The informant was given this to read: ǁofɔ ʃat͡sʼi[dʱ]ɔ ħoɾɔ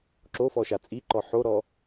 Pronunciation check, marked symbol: incorrect: ǃ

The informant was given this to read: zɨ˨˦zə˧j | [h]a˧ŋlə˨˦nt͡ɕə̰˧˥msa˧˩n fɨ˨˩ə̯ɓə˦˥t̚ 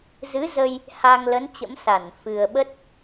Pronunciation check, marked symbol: correct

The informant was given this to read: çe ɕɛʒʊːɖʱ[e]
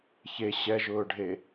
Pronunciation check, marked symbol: correct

